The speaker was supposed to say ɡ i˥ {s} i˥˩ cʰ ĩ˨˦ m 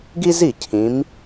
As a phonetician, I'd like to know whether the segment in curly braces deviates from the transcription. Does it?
yes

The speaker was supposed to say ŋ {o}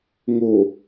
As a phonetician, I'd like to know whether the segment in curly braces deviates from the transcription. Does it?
no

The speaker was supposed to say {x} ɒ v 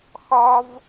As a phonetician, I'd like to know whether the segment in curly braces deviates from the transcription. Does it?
no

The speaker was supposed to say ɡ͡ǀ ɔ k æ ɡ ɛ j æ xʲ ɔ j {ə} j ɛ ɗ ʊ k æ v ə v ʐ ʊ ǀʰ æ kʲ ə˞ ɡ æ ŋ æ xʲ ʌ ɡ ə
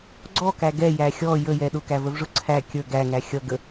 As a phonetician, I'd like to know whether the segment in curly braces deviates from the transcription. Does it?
no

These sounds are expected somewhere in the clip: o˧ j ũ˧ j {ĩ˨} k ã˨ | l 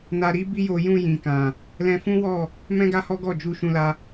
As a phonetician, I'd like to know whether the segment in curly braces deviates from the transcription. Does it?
no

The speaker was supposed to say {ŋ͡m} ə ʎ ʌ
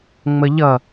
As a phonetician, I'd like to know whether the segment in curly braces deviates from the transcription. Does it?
no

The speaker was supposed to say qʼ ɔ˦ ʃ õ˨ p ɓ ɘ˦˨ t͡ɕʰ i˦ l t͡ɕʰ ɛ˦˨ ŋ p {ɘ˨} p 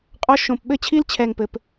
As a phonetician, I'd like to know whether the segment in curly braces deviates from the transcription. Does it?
no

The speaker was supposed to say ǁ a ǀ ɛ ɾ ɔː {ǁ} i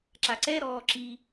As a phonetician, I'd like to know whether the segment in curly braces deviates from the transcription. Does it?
no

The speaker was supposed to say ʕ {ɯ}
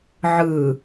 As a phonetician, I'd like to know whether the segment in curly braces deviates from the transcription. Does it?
no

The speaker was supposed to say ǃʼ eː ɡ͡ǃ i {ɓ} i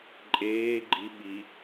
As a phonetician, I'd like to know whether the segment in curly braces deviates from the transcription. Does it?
no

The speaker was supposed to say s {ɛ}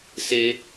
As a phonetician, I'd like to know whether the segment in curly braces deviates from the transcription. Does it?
yes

